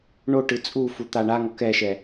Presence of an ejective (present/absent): present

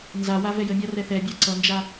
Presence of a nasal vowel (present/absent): absent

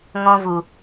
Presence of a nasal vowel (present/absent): present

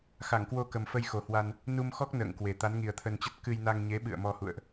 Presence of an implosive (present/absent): present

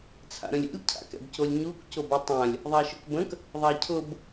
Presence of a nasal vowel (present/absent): present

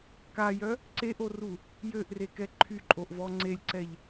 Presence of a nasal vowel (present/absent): absent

